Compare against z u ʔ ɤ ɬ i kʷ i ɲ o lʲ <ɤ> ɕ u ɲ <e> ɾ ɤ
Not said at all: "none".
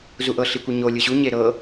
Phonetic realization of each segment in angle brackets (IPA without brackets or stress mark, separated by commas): ɯ, e